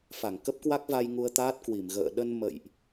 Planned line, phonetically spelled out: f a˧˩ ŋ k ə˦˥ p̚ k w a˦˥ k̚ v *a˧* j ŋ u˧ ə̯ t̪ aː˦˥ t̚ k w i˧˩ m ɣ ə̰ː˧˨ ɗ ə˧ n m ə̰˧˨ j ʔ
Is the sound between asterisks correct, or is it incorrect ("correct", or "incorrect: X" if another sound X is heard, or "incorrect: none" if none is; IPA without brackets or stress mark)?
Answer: correct